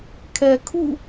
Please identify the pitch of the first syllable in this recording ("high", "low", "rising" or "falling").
low